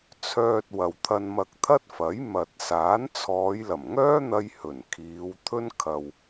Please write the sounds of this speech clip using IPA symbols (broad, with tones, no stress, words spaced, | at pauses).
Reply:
t͡sʰœː˧t̚wɐ˨wt̪ʰɐ˧nmɐ˧k̚ t̪ʰɐ˥t̚fɐ˨˥j mɐ˨t̚saː˨˥n t͡sʰɔː˨˧jlɐ˨˩mŋœː˥n̪ɐ˧j hɵ˨˩n kʰiː˨˧wt̪ʰɵ˥n kʰɐ˨w